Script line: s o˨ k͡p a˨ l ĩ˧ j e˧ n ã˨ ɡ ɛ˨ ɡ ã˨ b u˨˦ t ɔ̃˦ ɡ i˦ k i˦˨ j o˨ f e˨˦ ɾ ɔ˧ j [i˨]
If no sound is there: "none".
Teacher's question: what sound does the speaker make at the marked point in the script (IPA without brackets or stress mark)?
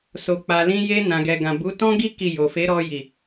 i˨